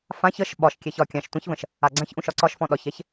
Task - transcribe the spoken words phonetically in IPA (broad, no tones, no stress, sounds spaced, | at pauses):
f ã ç ə ʃ ɓ ɒ ʃ kʲ ɛ ç ɒ kʲ ã ʃ tʷ ə̃ ç v ə̃ ʃ | a ɡ͡ǀ ã ç ʔ ũ ʃ ɒ ǀ ɒ ʃ f ɔ̃ ɗ ɒ ç ɛ ç